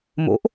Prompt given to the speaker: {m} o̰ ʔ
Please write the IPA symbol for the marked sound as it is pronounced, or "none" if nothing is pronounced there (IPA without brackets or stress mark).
m